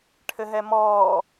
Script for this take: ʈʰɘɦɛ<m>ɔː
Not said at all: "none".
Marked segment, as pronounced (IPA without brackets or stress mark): m